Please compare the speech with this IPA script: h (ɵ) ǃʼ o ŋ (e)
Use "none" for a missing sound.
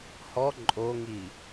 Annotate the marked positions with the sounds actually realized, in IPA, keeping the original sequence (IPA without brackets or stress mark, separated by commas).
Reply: ɔ, i